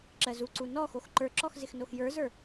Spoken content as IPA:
ǁ ɜ z u ǀ u n ɔ x o x ǃ ə˞ ǁ ɔ x z ɪ x n o x j ə˞ z ə˞

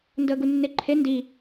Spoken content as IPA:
n d əː ɡ u nː e ǃʰ e n d i

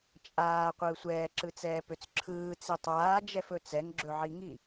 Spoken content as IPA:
t͡ʃʼ aː qʷ ɯː sʷ ɛː ǁ ɯ t͡s ɛː p ø t͡s ǁʰ ɯː t͡s i tˤ aː d͡ʒ ɛ f ɵ t͡s ɛ ŋ ɡ͡ǁ ɵ ʕ i ŋ i

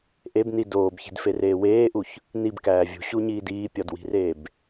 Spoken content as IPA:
ʔ e b n i d oː b ç i̤ d f e r eː w eː ʔ u ç | n i b k æː vʲ ṳ ɕ u ɲ iː d iː pʲ ɒ d w i̤ r eː b

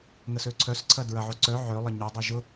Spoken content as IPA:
ŋ ə s ø ǀʰ œ s ǀʰ ɐ d ɹ ɐ ʕ o ǀ œ ʕ ø lˠ ɐ ɲ o dˤ ɛ ʒ ʊ

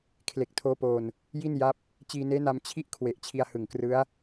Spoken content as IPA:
kʰ l e˨˩ k̚ tʰ oː˦˥ p oː˧ n | j i˥˩ n j a˦˥ p̚ | t͡ɕ iː˧ n eː˦˥ n a˧ m t͡ɕʰ i˥˩ ʔ kʰ w e˨˩ ʔ t͡ɕʰ i˧ a̯ h ɯ˨˩ ŋ k r ɯ˦˥ a̯

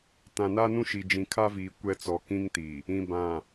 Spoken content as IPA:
t ã˨ n a˦ n ũ˦ ʃ i˨ d͡ʒ ĩ˨ kʰ a˦ v iː˨ kʷ ɛ˦ t͡s ɔ˨ k ĩ˦ ŋ t i˨ | ĩ˨ b ã˨

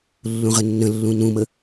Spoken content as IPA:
lː ũ ʁ ə nː ə̃ lː ũ n ũ m ə

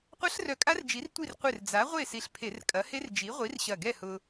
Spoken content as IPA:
qʷ ɐ˦˥ ɬ r œ˧˩ kʼ a˦˥ r d͡ʒ i˨˥ r tʷ i˥˨ r qʷ ɪ˧˩ r d͡z a˨˥ ʁʷ e˥˨ s i˧˩ ɬ pʰ e˧˩˧ r kʼ ɐ˨˥ h e˦˥ r d͡ʒ i˨˥ ʁʷ i˨˥ r ɕ ɐ˧˩ ɡ ɛ˥˨ h ʊ˧

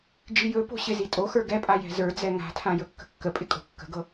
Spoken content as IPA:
d͡ʒ i j ɵ p o̤ ɕ ɪ z i tʼ o x ə˞ ɡ ɛ pʼ a j ɛ̤ z ə˞ d͡z ɛ ŋ a̤ tʰ ã j ɵ kː ə̤ kː ə pʼ ɪ kʼ o̤ kː ə̤ ɡ ɤ

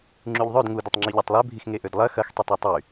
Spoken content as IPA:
ŋ͡ǁ y ʎ ðˤ ø d ŋ u d ɐ tˤ ŋ͡ǁ i ʎ a tˤ lˠ ø bʱ i x ŋ e ʔ ø d lˠ ɐ x ɐ x tˤ ø tˤ ø tˤ y

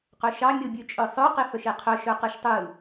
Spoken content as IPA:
q œ ʃ ɑ mʲ o bʲ ʉ t͡ʃʼ œ sˤ œ q e f œ ʃ e qʰ œ ʃ œ q ɯ ʃ tˤ ɯ

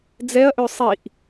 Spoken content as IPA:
d͡z ɛ ɐ̯ ʔ ø sˤ i ʔ

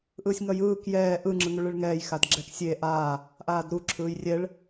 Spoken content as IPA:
ʔ ɯː sʲ ŋ ʌ j ɯː k j ɛː ʔ ɯ ŋ͡ǁ ɯ ŋ u ɭ ɯ ɭ ŋ ɛː j x a d ɡ͡ǁ ɛ k sʲ e ʔ aː | ʔ aː d ɾ u ǁʰ ɯː j rʲ ɛ ɭ

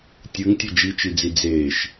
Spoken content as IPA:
tʲ ɯ ŋ tʲ ʌ d͡ʒ i t͡ʃ i d͡z i d͡z eː ʃ

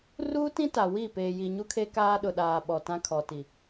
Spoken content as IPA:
r uː˦ t ĩ˦ t a˨ w i˦˨ p eː˨ j i˨ ɲ u˦ kʰ e˦ k aː˦ ɗ ʊ˨ ɗ aː˨ ɓ ɔ˨ t ã˦ kʰ ɔ˨ t i˨

